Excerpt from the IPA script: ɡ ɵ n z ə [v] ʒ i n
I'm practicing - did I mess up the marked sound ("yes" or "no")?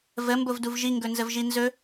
no